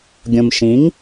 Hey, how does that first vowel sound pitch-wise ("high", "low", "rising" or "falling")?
low